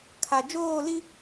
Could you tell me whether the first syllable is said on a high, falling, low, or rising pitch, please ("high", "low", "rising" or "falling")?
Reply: low